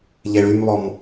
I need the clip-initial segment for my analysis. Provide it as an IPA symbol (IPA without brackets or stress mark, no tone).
ʎ